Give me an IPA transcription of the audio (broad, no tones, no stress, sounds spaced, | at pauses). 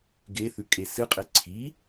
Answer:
ɡ e θ ʉ kʼ e s ɨ qʼ e ǀʰ i